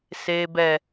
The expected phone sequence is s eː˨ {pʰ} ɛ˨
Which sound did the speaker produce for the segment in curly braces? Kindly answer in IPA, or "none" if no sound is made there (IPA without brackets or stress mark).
b